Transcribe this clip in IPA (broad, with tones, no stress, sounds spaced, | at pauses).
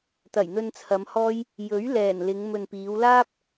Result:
t̪ ɐ˨˩ j n̪ ɵ˧ n t͡sʰ ɐ˨˧ m h ɔː˥ j | j ɵ˨˥ ɥ l ɛː˨˩ n l ɪ˨˧ ŋ m ɵ˨ n p iː˨˧ w l aː˥ p̚